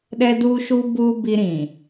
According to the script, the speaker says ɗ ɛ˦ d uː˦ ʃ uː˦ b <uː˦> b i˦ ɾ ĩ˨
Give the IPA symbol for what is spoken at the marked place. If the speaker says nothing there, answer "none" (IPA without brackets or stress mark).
uː˦